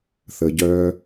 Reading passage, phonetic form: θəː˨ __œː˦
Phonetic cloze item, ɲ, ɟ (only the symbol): ɟ